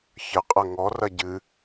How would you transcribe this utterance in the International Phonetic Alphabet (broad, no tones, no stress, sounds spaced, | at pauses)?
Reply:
ç ə qʼ ɐ ŋ ɔ r ɐ ɟ ɨ